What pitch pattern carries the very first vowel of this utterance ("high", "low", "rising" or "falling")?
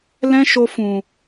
high